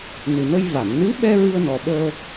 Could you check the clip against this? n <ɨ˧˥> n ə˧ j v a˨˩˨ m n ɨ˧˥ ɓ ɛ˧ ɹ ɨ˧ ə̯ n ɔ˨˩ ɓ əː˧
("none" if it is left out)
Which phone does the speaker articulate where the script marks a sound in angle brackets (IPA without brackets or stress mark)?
ɨ˨˩